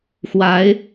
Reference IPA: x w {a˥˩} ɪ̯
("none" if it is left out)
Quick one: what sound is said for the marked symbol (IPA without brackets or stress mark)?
a˧˥